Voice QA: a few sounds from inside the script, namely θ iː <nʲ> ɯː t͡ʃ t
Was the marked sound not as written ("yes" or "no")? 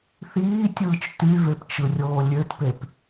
yes